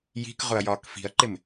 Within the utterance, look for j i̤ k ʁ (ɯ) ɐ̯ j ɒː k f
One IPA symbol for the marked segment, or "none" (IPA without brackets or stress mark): ʊ